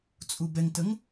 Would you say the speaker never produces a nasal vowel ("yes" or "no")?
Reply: yes